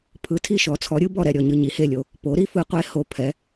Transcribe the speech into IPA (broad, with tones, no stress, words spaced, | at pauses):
pʰɯ˩˥tʰi˦˨ ʃɔ˩˥t͡sʰɔ˩˥ɾʲɯ˩˥ bɔ˦˨ɾɛ˦˨ɾʲɔ˦˨ɲɯ˦˨ ɲi˩˥he˦˨lʲo˦˨ | po˩˥ɾi˩˥ fɯ˩˥qʷe˩˥ ho˩˥pʰɛ˩˥